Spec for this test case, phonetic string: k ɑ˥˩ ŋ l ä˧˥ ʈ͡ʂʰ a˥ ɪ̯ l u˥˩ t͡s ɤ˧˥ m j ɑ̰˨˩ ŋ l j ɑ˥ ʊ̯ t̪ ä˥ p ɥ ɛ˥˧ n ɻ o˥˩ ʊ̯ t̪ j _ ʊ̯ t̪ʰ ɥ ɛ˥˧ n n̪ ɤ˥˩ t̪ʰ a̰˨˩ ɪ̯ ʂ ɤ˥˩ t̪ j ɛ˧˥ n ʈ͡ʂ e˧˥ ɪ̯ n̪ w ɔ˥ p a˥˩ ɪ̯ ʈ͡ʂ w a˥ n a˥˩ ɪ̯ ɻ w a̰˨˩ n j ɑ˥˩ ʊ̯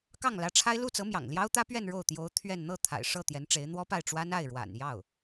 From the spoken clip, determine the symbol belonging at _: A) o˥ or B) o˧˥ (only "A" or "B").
B